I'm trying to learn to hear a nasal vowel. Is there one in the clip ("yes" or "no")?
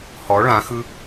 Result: yes